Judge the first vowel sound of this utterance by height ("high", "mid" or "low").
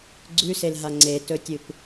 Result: high